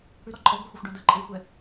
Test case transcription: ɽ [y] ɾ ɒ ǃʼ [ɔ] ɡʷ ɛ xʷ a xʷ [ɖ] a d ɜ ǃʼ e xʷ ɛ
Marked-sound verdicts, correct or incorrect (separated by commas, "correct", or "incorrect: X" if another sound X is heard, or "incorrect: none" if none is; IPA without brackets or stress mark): correct, correct, correct